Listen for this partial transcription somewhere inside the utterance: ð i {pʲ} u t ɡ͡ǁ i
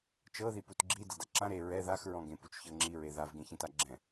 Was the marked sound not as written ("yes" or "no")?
yes